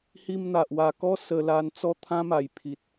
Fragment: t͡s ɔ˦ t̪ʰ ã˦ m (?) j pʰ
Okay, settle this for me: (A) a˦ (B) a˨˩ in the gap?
B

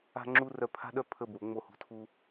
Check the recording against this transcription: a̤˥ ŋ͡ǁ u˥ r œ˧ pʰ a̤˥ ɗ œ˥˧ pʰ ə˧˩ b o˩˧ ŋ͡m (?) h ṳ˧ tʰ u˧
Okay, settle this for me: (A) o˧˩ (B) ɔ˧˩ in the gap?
A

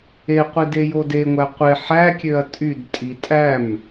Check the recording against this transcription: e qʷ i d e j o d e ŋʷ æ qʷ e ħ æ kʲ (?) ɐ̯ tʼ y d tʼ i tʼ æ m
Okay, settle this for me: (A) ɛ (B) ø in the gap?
B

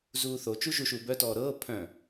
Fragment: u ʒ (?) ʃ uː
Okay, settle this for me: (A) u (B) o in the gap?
A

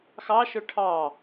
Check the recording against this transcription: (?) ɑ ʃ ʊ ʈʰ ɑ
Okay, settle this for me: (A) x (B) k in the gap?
A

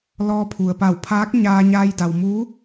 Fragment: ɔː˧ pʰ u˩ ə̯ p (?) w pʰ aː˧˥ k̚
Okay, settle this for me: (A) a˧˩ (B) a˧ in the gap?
A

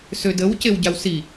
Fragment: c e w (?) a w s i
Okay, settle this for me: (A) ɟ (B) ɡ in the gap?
A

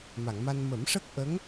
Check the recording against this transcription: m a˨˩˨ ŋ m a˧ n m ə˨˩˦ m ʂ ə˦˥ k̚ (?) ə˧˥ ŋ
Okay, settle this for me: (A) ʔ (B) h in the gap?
A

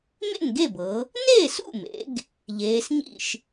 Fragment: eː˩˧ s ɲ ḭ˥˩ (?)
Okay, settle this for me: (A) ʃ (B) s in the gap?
A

